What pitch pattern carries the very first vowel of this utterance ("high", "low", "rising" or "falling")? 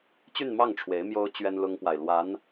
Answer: falling